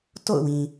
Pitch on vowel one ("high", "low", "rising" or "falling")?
falling